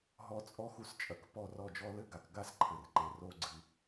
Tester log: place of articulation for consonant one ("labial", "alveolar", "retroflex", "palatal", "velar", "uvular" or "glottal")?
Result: glottal